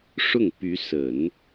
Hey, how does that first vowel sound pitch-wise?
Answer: falling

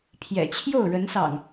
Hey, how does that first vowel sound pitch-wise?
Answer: low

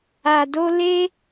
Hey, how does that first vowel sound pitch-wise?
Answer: low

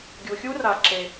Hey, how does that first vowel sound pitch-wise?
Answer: low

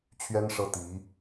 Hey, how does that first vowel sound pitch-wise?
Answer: high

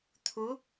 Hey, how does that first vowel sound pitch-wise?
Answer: rising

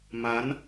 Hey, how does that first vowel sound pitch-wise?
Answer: rising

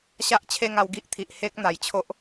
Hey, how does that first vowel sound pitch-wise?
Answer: high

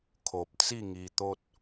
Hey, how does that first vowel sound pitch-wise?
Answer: low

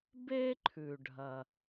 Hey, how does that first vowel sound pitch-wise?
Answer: high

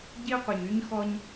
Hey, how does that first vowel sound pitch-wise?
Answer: high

